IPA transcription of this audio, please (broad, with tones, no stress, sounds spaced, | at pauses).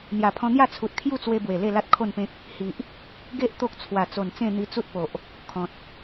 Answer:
n̪ j a˨˩ pʰ ɔ̃˧ n̪ j a˥˧ t͡sʰ u˨ t̚ kʰ j u˥˧ t͡s w e˧ b w e˨˩ l e˥˧ l a˦ t̚ kʰ o˥˧ n p ẽ˦ k̚ | h i˨ ʔ | ɡ e˦ ʔ t̪ o˦ k̚ t͡sʰ w a˨˩ t͡s o˨˩ n t͡s ẽ˥˧ n̪ i˧ t͡s u˦ t̚ p o˨ ʔ | kʰ ɔ̃˨ t̚